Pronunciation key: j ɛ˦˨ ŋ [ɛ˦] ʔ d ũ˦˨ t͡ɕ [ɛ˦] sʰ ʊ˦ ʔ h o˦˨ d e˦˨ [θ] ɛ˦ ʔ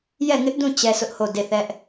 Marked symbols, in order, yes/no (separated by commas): no, yes, yes